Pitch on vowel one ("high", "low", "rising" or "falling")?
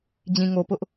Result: low